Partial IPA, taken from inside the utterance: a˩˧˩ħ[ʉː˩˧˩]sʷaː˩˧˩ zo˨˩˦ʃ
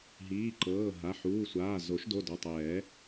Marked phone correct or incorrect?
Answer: incorrect